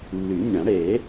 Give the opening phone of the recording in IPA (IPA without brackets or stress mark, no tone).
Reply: lː